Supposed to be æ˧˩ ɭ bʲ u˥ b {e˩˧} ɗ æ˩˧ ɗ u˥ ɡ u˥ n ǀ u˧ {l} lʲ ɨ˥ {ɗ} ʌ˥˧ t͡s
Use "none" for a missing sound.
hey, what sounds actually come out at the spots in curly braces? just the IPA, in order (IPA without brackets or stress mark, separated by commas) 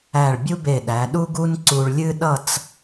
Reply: e˧˩, ɭ, ɗ